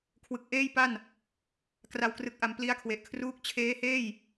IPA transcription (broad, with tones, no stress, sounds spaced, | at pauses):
kʰ w ɯ˨˩ k̚ ʔ eː˥˩ j p a˥˩ n | k r a˨˩ w k r ɯ˨˩ k̚ ʔ a˩˦ m p l i˦˥ a̯ kʰ w e˨˩ ʔ kʰ r uː˦˥ k̚ t͡ɕʰ eː˦˥ h eː˥˩ j